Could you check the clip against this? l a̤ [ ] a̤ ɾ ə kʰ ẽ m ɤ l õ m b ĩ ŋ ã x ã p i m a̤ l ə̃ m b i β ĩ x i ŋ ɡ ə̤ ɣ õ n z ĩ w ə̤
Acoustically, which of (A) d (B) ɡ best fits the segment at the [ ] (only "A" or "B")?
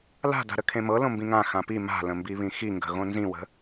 A